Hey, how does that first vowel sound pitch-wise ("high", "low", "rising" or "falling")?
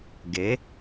rising